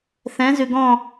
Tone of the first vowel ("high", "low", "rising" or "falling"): rising